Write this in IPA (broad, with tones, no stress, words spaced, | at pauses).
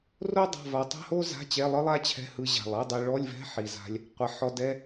ro˥ dˤa̤˧˥˧va˧ tˤɛ̤˥ho˥za̤˧˥˧ t͡ɕɛ˧˥˧lˠɯ˥lˠa˥t͡ɕʰɛ̤˧˥˧ hɯ˧ʑa̤˨˩lˠ ɛ˧˥˧dˤe˧ɭɔ˧˥˧lʲvɛ̤˧˥˧ ħi˨˩za̤˧lʲ | qʷɛ˨˩ħɔ˧dɛ˧˥˧